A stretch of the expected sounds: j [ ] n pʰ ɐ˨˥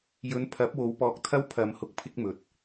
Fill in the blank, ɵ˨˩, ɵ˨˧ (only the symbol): ɵ˨˧